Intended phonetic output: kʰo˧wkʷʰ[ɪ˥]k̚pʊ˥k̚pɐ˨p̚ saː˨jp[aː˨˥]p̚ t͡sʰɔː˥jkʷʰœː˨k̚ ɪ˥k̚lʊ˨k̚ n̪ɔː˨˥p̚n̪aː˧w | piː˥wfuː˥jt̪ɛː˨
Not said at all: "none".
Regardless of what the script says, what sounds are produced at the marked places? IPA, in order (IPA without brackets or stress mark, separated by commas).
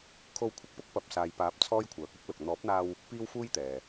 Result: ɪ˧, aː˨˥